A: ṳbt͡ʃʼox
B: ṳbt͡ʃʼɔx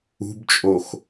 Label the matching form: A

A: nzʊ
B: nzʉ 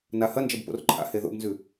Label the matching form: B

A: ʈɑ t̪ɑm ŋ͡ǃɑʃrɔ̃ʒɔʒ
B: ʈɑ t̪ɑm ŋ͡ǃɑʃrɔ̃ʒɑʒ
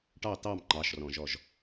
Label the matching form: A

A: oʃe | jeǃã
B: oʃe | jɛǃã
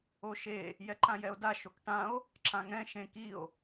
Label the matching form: B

